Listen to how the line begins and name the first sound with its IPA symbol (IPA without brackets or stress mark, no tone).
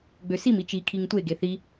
ɡ͡b